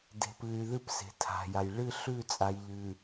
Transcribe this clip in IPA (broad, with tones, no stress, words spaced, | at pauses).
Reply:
de̤˨pɨ˨y̯ðɨ˦p se̤˨tʰa̤˨ja˨j ɭɨ˦˨ɬʉ˦˨t͡sʼa˨jʎɨ˨